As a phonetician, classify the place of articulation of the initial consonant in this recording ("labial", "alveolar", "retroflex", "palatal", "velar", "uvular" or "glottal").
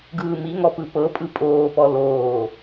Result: velar